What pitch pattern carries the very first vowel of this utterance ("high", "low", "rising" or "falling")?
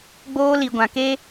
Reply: high